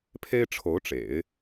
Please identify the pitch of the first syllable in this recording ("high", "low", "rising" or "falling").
high